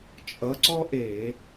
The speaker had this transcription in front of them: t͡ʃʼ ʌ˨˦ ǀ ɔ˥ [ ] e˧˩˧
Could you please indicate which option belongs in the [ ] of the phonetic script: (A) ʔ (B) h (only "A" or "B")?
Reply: A